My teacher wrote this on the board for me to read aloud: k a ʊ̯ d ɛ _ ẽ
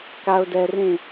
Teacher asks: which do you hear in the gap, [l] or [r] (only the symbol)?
r